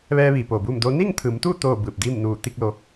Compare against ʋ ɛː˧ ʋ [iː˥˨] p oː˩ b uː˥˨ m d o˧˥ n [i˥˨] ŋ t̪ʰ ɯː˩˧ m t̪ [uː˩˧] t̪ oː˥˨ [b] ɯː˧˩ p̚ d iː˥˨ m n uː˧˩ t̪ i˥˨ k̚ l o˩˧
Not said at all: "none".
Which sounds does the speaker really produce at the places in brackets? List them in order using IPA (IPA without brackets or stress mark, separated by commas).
iː˩, i˥˨, uː˥˨, b